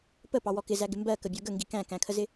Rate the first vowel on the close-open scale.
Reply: mid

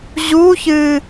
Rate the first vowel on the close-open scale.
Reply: close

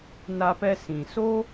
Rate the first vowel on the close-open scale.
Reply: open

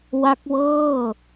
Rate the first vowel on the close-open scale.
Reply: open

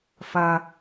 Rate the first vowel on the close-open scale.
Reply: open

